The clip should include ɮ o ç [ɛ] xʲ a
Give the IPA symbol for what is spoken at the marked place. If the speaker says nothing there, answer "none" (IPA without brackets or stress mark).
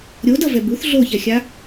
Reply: ɛ